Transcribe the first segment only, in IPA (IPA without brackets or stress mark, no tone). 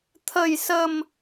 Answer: t̪ʰ